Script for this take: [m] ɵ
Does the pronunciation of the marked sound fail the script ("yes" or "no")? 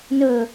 yes